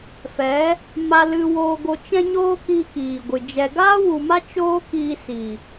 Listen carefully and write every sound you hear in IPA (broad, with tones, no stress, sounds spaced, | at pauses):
f ɛ˨˦ | m a˧ l ɨ˧ w oː˧ ɡ o˧ t͡ʃ ɛ̃˦ ɲ oː˦ k iː˧ k iː˨ ɡʷ ɨ˨ d͡ʒ ɛ˧ ɡ aː˦ w u˨ m a˦ t͡ʃ oː˦ k iː˧ s i˨